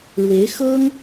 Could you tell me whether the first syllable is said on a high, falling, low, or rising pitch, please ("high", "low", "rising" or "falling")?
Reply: rising